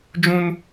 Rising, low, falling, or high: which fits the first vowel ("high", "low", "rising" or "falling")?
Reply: high